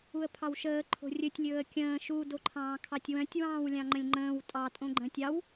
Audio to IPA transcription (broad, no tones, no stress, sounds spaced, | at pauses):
u ə̯ pʰ ɑ w ʃ əː ǃʰ o̤ rʲ ɵ tʲ lʲ ɵː ə̯ kʲ ə̃ː ʃ u d o ǃʰ ɑ̃ː kʰ ɑ tʲ w œ̃ tʲ w ɑ̃ː w lʲ ɑ̃ ŋ͡ǃ ə̃ lʲ ŋ͡ǃ ə̃ː w tʼ ɑ tʼ õ ɡ͡ǃ ə̃ː tʲ ɑ w